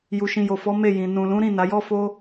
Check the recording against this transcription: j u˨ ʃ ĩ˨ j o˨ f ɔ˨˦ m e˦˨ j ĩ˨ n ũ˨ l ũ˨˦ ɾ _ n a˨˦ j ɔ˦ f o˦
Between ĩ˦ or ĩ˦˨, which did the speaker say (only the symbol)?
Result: ĩ˦˨